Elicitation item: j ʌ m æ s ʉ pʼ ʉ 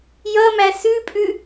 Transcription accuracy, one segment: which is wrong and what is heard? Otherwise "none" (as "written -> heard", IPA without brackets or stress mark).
none